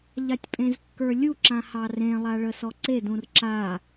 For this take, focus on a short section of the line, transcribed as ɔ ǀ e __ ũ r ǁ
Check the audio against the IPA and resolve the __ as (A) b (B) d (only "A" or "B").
B